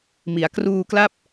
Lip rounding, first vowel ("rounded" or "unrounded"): unrounded